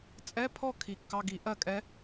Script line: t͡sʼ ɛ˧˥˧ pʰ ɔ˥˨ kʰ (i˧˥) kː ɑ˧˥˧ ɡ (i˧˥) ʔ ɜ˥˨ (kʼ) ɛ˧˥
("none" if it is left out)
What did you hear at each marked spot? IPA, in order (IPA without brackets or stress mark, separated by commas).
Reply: i˨˩˦, i˨˩˦, kʼ